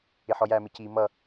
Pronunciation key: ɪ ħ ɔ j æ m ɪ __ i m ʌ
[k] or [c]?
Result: c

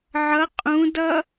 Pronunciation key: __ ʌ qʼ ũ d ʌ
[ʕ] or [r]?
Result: ʕ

